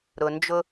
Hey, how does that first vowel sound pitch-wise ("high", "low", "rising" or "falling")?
low